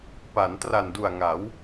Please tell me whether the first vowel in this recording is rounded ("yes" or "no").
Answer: no